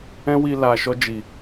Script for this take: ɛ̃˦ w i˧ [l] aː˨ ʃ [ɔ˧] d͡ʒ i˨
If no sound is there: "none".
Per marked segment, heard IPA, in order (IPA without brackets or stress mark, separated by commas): l, ɔ˧